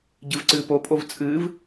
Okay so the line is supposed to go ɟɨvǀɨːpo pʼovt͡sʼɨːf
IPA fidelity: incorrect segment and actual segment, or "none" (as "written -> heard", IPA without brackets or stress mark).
f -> v